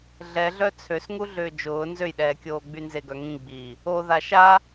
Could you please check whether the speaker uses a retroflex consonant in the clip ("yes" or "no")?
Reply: no